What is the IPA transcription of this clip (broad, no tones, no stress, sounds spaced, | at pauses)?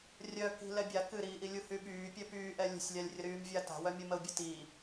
rʲ œ k i̤ l ɛ bʲ a k ɨ ɾ iː ʔ i lʲ u h y ɓ yː pʲ ɛ p yː ʔ ɛ lʲ ə̤ sʲ lʲ a lʲ rʲ ə ɾ yː m vʲ a t a̤ w œ mʲ ɔ m ə ʊ̯ bʲ ɨ t iː